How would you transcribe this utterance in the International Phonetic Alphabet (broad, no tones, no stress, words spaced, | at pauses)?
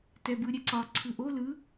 tɛbɯɾʲɛǀɒ ǀʰɯʔo lɯ